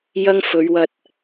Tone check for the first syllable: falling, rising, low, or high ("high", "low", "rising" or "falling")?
high